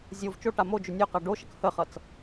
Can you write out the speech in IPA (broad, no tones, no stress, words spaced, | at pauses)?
zʲov t͡ʃoʈa mod͡ʒʏ nʲoqa ɖoʃək həχʌt͡s